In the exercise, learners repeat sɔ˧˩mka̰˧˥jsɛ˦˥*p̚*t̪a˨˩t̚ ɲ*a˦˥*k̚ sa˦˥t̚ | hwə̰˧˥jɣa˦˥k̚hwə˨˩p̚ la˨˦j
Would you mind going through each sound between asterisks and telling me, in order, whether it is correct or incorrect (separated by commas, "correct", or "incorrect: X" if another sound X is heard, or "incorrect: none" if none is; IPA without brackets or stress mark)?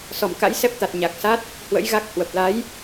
correct, incorrect: a˨˩